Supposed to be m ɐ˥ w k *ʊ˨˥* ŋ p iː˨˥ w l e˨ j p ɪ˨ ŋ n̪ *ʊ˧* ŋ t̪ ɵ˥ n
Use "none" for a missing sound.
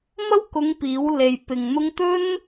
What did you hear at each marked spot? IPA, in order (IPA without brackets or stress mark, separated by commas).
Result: ʊ˨˧, ʊ˧